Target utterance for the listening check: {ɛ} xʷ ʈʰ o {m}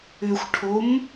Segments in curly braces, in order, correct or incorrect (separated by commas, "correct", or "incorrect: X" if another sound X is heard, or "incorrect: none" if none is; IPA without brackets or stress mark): incorrect: ʏ, correct